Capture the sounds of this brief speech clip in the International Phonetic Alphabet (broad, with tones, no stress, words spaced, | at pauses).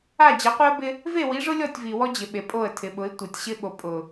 a˦˨ d͡ʑɪ˨˦qʷi˦ə̯bɪ˦ | ve˦˨wi˨˦ʐʊ˦lʲɔ˦˨tʲ vi˨ wɔ˦d͡ʑɪ˨ ɓe˨pʼo˦˨ə̯tʰɪ˨ɓʊ˨˦ɪ̯ tʷe˨tʲɕɪ˦ɓo˨ pʼʊ˨